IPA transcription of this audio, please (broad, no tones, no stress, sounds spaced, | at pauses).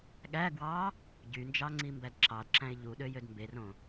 ɠ æ ɡ w ɑ | ɟ y n d͡ʒ ɑ ŋ͡ǀ i m b æ d ǁ ɑ d ǁ æ̃ ɪ̯ ʎ u ɗ ø j ø d m b e r õ